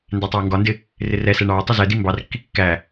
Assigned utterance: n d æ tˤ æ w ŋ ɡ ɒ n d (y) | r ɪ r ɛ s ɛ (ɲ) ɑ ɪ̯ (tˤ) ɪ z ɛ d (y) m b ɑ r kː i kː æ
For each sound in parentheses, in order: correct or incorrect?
incorrect: ɪ, incorrect: ɳ, correct, incorrect: i

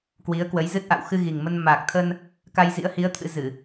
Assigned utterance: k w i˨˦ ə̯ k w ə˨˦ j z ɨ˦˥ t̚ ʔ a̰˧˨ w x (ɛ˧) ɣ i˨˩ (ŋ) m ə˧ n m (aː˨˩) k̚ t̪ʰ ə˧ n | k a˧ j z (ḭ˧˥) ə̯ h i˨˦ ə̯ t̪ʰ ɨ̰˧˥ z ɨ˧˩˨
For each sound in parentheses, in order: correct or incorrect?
incorrect: ɨ˧, correct, correct, correct

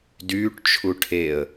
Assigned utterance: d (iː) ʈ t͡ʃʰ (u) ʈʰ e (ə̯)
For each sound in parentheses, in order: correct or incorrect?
incorrect: yː, correct, correct

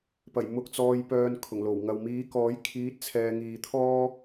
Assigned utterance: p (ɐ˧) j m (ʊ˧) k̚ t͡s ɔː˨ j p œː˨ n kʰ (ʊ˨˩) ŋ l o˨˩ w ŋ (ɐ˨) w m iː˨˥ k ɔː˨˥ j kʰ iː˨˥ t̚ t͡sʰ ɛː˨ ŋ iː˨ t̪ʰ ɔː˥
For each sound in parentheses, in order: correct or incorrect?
incorrect: ɐ˨˩, incorrect: ʊ˨, correct, correct

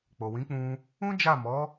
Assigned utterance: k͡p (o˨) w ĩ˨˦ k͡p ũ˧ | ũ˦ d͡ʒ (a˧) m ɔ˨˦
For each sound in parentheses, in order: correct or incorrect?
correct, incorrect: a˦˨

